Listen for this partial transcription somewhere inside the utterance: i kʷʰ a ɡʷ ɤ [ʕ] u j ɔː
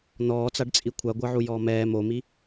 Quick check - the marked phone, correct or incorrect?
correct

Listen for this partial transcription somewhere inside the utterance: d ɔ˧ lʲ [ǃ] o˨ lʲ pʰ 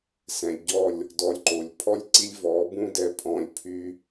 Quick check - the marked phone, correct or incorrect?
correct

